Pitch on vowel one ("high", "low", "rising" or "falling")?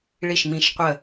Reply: falling